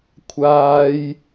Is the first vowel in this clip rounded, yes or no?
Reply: no